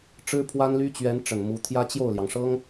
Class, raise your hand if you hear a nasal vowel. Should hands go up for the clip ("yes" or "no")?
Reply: no